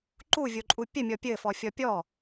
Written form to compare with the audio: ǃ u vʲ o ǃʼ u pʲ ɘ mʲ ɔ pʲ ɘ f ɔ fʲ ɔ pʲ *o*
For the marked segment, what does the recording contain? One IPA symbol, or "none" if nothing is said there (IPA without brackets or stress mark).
ɔ